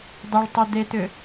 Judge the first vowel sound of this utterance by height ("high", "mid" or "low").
high